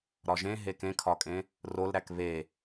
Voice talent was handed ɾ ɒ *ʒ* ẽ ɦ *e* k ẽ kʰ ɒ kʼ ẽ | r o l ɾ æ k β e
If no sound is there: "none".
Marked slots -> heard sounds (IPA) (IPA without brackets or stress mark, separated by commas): ʒ, e